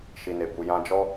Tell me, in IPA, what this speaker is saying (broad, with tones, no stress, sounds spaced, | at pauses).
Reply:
ʃ i˨ n e˨ b u˨ j ã˧ d͡ʒ ɔ˦